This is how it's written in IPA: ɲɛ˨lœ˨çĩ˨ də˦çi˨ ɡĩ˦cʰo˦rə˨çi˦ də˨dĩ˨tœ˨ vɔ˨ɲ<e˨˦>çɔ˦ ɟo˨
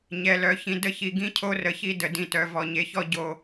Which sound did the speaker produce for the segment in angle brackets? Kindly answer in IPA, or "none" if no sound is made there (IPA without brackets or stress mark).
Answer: e˨˦